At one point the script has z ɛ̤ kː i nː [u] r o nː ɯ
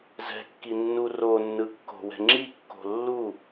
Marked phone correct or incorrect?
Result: correct